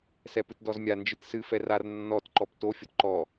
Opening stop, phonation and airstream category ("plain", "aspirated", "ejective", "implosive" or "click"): plain